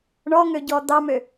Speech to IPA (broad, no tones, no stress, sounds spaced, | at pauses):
ɳ ɔ ŋ ø ɟ ɔ d̪ ɑ m ø